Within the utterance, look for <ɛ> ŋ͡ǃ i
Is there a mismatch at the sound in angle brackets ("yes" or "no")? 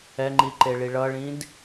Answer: no